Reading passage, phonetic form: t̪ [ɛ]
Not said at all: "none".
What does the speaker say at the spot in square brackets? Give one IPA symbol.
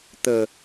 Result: ə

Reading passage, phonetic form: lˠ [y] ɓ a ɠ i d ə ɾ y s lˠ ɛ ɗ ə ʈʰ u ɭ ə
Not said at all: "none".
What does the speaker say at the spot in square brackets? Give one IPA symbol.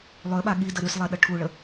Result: ø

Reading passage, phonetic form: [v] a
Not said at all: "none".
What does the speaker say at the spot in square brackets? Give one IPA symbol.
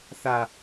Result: θ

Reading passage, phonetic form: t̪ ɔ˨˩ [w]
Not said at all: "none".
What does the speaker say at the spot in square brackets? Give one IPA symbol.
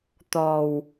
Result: w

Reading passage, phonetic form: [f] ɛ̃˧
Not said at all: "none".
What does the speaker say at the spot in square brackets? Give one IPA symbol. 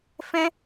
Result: f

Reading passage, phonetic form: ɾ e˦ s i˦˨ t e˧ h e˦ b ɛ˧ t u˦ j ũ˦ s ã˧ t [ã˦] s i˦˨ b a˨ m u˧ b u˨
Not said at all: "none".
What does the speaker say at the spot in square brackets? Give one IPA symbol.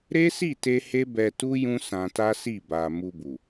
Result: a˦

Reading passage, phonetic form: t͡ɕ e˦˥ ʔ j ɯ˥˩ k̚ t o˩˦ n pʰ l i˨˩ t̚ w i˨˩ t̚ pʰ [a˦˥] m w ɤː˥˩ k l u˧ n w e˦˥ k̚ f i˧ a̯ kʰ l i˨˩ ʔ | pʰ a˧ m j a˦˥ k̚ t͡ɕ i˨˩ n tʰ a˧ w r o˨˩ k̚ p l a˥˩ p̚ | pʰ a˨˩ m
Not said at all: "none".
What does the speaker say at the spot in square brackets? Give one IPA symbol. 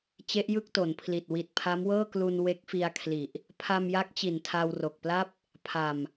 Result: a˦˥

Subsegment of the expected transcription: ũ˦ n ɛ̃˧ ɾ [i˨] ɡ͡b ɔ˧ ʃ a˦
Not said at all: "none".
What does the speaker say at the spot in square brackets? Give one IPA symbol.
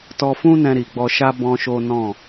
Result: i˨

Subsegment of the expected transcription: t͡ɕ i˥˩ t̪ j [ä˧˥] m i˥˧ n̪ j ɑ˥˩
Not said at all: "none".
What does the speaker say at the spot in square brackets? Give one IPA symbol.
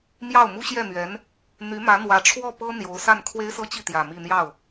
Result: ä˨˩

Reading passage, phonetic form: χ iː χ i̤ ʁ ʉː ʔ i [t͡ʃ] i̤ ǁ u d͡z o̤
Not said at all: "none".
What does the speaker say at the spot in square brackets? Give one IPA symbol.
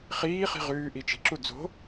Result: t͡ʃ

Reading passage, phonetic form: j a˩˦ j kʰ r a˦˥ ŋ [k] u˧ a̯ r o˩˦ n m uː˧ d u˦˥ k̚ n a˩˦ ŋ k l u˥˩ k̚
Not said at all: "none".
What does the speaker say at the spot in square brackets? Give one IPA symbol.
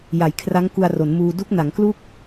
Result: k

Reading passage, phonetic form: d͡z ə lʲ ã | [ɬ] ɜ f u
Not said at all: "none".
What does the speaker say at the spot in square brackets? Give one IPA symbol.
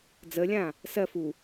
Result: s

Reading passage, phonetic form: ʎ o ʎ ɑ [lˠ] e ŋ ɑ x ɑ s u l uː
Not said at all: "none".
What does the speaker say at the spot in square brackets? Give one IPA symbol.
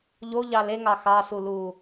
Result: l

